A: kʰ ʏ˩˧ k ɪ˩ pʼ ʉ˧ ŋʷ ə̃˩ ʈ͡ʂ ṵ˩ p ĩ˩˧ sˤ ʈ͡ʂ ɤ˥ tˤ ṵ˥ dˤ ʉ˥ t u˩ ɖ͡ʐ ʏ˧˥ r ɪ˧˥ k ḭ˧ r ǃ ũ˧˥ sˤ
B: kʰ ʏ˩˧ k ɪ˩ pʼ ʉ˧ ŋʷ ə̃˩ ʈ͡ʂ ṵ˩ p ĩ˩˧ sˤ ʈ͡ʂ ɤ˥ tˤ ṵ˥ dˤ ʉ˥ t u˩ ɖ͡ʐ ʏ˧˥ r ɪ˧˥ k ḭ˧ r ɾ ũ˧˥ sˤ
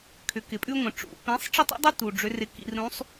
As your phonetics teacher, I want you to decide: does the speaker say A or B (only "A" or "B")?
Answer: B